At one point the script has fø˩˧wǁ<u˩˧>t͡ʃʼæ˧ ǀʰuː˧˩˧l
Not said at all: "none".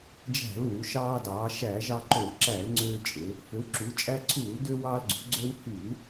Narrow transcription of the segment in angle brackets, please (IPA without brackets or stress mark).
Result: u˩˧